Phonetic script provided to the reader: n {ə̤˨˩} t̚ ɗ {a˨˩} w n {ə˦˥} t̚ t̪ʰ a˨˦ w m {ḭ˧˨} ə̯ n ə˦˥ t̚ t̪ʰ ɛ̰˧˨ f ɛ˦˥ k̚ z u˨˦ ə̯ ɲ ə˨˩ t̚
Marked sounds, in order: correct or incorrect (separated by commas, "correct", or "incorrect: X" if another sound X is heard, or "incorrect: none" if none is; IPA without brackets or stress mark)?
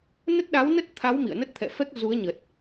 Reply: incorrect: ə˦˥, incorrect: a˨˦, correct, correct